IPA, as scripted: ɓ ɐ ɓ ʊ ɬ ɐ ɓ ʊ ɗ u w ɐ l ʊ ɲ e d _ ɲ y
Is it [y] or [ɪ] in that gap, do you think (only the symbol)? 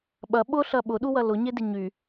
ɪ